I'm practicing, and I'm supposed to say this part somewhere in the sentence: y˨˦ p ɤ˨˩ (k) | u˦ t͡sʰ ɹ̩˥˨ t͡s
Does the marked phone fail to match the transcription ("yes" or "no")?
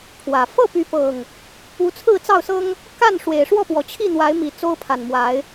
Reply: yes